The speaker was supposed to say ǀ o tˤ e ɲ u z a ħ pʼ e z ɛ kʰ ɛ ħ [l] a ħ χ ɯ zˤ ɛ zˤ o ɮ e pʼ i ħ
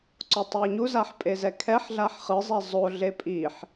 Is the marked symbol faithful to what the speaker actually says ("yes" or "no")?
no